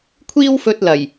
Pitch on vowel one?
high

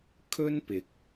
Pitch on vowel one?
high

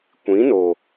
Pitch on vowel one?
rising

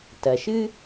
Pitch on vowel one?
low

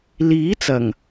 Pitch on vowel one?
rising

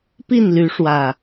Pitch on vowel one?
falling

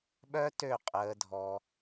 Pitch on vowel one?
high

